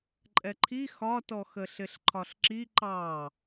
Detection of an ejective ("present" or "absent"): present